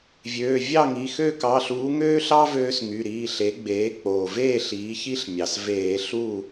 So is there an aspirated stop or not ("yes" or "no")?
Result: no